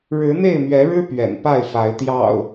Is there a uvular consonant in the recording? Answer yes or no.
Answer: no